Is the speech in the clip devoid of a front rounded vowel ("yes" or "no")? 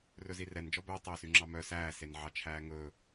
no